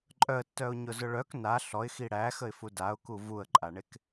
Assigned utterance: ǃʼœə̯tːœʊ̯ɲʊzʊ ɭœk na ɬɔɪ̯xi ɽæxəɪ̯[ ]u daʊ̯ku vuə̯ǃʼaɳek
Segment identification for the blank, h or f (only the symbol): f